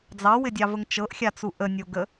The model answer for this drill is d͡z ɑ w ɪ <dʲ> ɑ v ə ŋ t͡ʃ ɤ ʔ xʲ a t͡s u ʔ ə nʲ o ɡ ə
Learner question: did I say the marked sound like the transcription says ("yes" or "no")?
yes